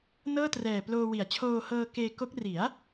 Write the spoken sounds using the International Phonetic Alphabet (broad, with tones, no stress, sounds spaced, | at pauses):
n ɤː˥˩ t r ɛː˨˩ p l oː˧ w i˩˦ a̯ t͡ɕʰ oː˧ h ɤː˧ k eː˧ k o˦˥ k̚ r i˩˦ a̯